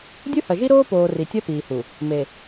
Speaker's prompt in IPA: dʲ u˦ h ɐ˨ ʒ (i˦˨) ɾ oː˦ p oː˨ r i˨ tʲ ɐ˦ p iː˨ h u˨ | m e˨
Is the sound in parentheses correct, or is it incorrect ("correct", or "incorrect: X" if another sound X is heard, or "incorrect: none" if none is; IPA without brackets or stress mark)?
incorrect: i˦